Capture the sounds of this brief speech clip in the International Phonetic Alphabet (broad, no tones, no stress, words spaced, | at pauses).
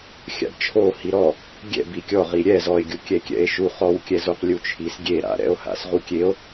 xʲa̰bt͡ʃʰo hiɾɔ | ɡʲɛ̰ bikʲɔʁi ɾʲɛz ɔe̯ɡʲu kʲɛkʲɛ̰e̯ʃu χɔwkʲɛzoq lʲut͡ʃʰis ɡʲeɾa̰ɾɛ̰o̯ ha̰sʁukʲeo̯